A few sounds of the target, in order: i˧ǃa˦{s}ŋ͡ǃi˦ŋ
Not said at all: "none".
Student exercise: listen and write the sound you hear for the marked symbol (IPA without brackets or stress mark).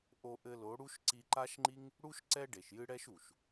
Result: ʃ